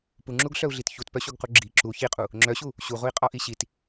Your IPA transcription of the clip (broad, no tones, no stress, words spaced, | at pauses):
puŋ͡ǁuɡɬœu̯ɮit çutpœɕuɡqu ɡ͡ǁi ǁu çiqʼu | ŋ͡ǁœɕu | ɕuʁui̯qʼɔʔi ɕit